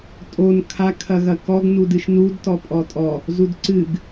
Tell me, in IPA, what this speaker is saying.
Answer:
tʼon kʰa kʰɐɣɐkɔɡ nudɨʃnud tɔpʼɔtʼɔ | zudǀɨɡ

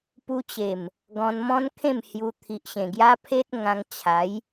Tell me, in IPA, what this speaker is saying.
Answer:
pu˧t͡ɕe˨˩m | ɡɔ̃˧nmɔ̃˦nkʰẽ˥˧m hju˧ t̪ʰi˨ʔɕẽ˨˩ ɡja˦pʰe˦t̚ ŋã˧ŋt͡ɕʰa˨˦j

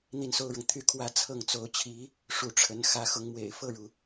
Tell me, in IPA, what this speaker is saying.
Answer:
n̪i˥˩nso˥ʊ̯ɻɤ˨ŋ t̪ʰy˥˩kʰwä˥ t͡sʰɤ˥˩ŋt͡so˧˥ʊ̯t͡ɕʰi˧˥ | ʂu˧˥ʈ͡ʂʰə˧˥n xä˧˥xʊ˧˥ŋmwḛ˨˩ɪ̯ fɤ˥˩ɻu˩

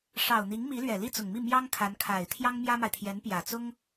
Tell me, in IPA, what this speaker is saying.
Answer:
ʂɑ˨˩ʊ̯n̪i˧˥ŋmi˧˥ lɥɛ˨˩li˥˩t͡sʊ˨˩ŋmi˥˩ mjɑ˥ŋ kʰa˧˥nkʰa˨˩ɪ̯ t̪ʰjɑ˥ŋmjä˥ma˨ɪ̯ t̪ʰjɛ˧˥npjä˨˩t͡sʊ˥ŋ

